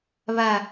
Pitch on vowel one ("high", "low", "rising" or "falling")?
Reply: low